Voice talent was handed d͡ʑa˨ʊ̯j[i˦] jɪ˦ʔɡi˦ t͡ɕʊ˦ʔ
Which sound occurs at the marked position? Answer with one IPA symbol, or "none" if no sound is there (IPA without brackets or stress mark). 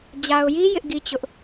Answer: i˦